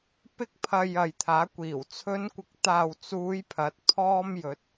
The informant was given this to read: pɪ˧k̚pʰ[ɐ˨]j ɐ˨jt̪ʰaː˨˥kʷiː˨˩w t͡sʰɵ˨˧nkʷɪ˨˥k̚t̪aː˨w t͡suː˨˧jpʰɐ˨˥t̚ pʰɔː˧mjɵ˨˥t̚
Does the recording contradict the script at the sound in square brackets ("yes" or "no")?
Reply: no